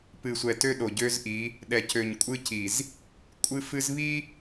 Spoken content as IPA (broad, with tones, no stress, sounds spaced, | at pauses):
p ɨ˨ sʷ ɛ˨ t ø˦ ɗ o˨ ɟ ø˦ z ʔ i˨˦ | ɗ ɛ˨ c ø˨ ɲ kʷʼ ɨ˦ c i˨ z | kʷʼ ɨ˦ f ɨ˦ z β i˦